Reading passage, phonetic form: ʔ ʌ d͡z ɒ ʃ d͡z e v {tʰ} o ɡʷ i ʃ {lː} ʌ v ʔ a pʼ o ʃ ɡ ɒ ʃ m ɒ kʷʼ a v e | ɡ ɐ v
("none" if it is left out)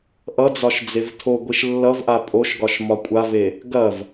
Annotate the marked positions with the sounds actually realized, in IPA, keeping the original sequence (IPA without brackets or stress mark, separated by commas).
tʰ, lː